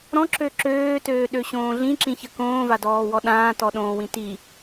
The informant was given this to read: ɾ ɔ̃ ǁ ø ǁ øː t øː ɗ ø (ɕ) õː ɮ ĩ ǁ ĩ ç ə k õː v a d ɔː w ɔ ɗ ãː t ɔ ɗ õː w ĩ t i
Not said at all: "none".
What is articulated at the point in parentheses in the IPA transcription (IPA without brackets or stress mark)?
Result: ɕ